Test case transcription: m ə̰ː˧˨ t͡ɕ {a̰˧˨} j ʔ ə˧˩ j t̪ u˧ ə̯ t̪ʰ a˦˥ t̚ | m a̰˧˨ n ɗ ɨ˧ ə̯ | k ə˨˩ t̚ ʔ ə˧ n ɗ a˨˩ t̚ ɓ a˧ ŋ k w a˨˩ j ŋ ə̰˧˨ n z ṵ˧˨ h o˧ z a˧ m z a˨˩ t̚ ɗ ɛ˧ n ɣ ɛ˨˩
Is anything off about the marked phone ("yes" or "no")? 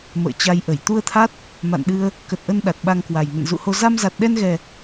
yes